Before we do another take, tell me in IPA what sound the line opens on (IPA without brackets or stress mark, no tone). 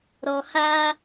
ɾ